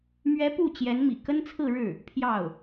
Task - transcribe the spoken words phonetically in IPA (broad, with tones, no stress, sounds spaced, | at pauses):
m ɥ ɛ˧˥ p u˥˩ t͡ɕ j ɛ˧˥ n m ḭ˨˩ k ə˥ n t͡sʰ ɹ̩˥˧ ɻ ɻ̩˥˩ | pʰ j ɑ˥˩ ʊ̯